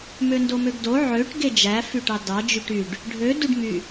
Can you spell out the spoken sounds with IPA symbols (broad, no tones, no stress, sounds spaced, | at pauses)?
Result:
m ø n d o m ø ɡ d o ʕ ø ʈ ɡ e d͡ʒ æ f y ʈ ɑ d ɑ d͡ʒ y ʈ y ɖ | ɖʱ ø d u ɖ m y